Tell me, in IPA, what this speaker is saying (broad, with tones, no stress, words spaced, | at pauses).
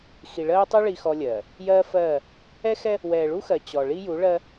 xi˨ɭɜː˦tˤu˦ ɭi˦xɔ˦lʲɜː˨ | jɜː˦ fɜː˦˨ | ɛ˦xɛ˦ | wɛː˨ɭu˦xɜ˨ t͡ɕɔ˨ɭi˦ ju˨˦ɭɜ˦